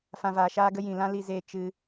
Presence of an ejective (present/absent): absent